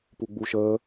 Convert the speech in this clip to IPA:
p u ɡ͡b u ʃ əː

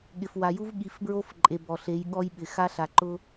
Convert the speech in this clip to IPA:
ɠ ɪ˨ f w a˨ j u˦ v ɠ i˨ f b ɹ o˦ f ǃʼ e˨ b ɔ˨ ɬ e˨˦ j ɠ ɔ˦ j ɓ ɪ˨ x a˦ ɬ a˨ ǃ ʊ˦

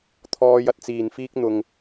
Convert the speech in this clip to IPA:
t̪ʰ ɔː˥ j ɐ˥ t̚ t͡s iː˧ n f iː˥ k̚ n̪ ʊ˥ ŋ

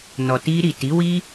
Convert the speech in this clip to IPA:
n ɔ˨ t i˧ ɾ i˨ t i˨˦ w i˦

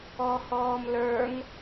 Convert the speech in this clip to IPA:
ɔ h ɔː m l ə˞ ŋ

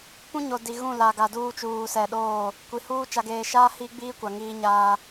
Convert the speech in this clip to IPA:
p ũ˦ ɲ o˨ d i˨ ɣ ũ˦˨ l a˨ ɡ a˨ d uː˦ t͡ʃ uː˨ s ɛ˨ ɗ oː˦˨ | kʷ i˨ h uː˦ t͡ʃ a˨ ɡ eː˨ ʃ aː˦ h i˦ ɡ͡b iː˦ kʷ a˨ ŋ iː˦ ɲ aː˦

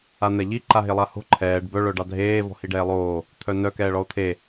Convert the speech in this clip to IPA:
a n̪ ɛ ʎ i ǃ a ɦ e lˠ a h o̤ ǃʰ ɛː ɖ b œ ɭ œ ɖ ɑ dʱ eː v ɔ̤ h i ɖ ɛː lˠ oː | t̪ʰ œ n œ k ɛː ɭ ɔ o̯ t̪ʰ e

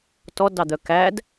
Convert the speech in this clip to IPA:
t ɔ d ɑ d̪ œ k æ d

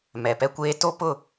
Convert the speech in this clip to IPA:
m ɛ˨ p ɛ˦ kʷ eː˦ t o˦ p ʊ˦˨

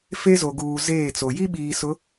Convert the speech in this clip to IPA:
f e˦ z o˨ ɡ uː˨ z eː˦˨ t͡s o˨ j i˦ ɓ iː˨ s ʊ˨˦

